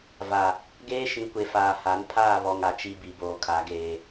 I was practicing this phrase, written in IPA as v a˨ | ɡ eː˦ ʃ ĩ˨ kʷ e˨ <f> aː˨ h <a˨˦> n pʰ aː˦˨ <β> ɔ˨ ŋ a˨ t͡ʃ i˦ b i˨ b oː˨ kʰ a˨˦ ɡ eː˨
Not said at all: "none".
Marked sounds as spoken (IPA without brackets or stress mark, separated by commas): f, a˨˦, β